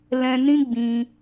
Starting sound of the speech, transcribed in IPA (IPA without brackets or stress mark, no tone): l